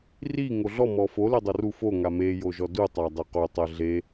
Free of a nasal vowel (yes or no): yes